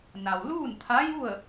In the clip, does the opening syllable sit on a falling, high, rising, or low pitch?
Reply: low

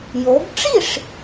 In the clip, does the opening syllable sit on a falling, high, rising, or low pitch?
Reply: rising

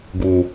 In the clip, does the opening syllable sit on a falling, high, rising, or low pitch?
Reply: low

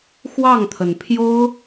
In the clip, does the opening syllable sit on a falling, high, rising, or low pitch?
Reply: falling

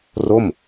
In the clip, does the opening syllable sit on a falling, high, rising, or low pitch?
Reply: falling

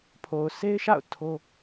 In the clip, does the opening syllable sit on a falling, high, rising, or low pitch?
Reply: low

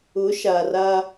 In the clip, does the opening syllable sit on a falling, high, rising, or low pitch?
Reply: rising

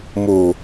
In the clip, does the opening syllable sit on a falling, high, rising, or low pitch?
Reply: low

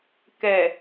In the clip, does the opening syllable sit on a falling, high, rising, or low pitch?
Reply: low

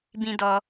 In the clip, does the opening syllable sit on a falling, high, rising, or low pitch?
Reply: high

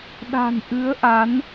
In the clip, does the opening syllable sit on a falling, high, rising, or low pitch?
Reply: low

